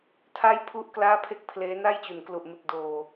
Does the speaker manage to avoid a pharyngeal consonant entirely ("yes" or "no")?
yes